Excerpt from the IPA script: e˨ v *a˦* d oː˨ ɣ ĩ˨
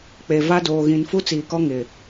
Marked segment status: correct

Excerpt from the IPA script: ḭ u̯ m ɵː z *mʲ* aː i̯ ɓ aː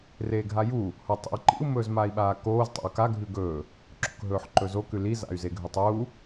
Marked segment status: incorrect: m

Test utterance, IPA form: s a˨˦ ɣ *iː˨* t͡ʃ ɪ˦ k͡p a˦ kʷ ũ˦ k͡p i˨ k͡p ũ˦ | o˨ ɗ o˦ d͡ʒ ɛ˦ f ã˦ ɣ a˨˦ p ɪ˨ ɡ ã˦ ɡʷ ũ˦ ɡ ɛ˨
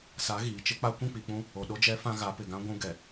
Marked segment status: correct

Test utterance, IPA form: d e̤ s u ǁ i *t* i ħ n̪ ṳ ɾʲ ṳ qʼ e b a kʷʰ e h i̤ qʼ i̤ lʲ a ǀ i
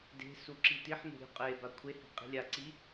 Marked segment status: correct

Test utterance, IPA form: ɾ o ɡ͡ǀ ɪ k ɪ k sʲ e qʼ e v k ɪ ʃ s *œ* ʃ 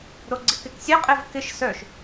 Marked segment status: correct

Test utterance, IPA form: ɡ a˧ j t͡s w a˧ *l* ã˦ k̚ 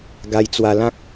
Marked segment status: correct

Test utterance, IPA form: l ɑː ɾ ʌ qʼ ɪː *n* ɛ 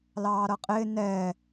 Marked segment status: correct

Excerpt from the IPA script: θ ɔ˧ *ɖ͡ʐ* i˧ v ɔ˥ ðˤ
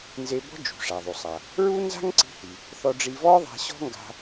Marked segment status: correct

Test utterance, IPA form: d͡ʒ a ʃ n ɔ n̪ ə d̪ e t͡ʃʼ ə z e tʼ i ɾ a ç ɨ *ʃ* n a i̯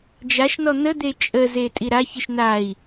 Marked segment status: correct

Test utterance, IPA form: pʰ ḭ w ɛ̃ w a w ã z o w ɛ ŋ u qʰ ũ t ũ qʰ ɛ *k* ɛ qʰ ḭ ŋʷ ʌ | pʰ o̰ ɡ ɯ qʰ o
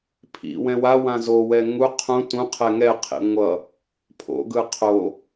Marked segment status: incorrect: ŋ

